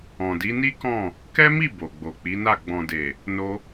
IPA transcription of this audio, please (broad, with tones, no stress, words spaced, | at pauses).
ɔ̃˨di˨˦ ni˦kɔ̃˦˨ | kɛ˦mi˦˨ bo˨ɡ͡bo˨k͡pi˨˦na˦˨ ɡ͡bɔ̃˨de˨ | no˧